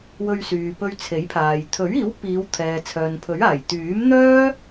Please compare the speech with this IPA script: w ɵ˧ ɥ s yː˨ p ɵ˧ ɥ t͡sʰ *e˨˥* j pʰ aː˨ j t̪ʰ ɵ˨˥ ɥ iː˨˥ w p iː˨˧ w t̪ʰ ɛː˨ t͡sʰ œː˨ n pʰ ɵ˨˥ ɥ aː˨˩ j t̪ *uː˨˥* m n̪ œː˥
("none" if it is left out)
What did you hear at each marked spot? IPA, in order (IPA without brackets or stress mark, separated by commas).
e˨˥, yː˨˥